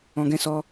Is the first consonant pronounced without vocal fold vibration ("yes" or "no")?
no